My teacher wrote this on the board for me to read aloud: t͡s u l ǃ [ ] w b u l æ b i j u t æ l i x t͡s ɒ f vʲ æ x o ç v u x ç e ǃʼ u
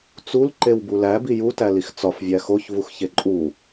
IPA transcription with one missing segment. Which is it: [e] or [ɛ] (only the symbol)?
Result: e